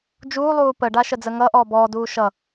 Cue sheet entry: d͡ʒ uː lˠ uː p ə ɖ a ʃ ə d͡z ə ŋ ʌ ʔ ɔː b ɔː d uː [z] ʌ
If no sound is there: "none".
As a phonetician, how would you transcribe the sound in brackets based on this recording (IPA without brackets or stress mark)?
ʃ